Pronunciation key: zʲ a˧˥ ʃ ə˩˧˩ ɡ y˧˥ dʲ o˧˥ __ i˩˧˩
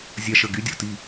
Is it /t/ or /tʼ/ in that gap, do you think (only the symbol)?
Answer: t